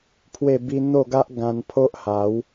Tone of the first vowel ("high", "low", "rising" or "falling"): falling